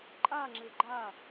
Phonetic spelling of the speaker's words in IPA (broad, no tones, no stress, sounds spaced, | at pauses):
ǃʼ a ŋ͡ǁ ɘ ɡ͡ǃ a